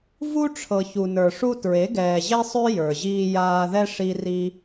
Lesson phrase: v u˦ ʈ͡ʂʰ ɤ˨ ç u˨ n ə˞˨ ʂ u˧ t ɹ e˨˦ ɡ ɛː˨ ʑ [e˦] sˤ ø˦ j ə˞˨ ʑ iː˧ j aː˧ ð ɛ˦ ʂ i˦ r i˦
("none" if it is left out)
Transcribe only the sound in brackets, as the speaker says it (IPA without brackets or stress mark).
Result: e˦